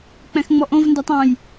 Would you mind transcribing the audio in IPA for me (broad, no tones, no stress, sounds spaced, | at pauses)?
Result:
k͡p ɛ̃ x ŋ͡m ɔ ʔ õ v n d ɛ tˤ ɑ̃ j